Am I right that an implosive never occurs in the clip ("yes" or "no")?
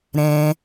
yes